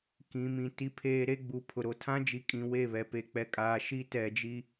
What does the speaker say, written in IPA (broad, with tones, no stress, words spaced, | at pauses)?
kĩ˨mĩ˨ ti˦pʰeː˦ ɾe˦ɡ͡bu˨pʰʊ˨ ɾo˨tʰã˦d͡ʒi˨kʼĩ˨ we˦˨βɛ˨ pe˨k͡pɛ˨kʼaː˨ ʃi˦tɛ˨d͡ʒi˦